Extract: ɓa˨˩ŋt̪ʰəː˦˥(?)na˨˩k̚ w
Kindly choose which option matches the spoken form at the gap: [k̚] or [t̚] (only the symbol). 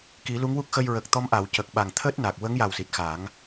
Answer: t̚